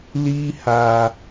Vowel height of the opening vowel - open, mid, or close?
close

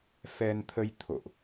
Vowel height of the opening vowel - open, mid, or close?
mid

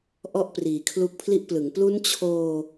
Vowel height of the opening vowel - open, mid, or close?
mid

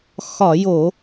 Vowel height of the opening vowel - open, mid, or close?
open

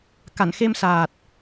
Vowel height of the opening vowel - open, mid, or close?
open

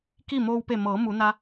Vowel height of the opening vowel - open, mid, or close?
close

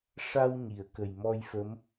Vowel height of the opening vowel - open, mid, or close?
open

